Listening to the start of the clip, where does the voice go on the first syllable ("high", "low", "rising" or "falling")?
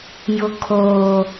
low